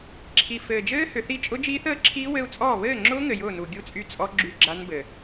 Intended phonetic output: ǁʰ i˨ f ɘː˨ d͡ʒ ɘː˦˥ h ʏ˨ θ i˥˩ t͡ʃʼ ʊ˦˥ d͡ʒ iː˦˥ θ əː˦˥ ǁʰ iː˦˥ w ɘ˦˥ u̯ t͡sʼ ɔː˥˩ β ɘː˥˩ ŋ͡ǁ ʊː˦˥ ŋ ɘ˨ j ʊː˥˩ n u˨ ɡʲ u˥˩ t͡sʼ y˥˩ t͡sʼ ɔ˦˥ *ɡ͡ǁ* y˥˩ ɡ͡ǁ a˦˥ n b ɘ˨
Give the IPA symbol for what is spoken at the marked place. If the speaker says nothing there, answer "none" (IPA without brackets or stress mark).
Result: ɡ͡ǁ